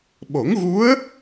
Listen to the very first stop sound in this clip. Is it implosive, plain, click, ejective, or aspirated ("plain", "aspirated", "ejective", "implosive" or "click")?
implosive